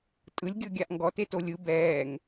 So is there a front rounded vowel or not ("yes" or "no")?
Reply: no